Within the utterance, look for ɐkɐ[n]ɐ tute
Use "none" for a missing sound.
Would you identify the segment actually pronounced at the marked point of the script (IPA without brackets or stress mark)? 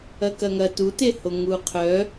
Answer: ŋ